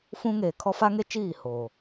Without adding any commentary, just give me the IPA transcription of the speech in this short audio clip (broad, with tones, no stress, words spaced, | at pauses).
fũ˦ŋeː˨ kʰɔ˦fa˦ŋe˦t͡ʃiː˦˨ hoː˨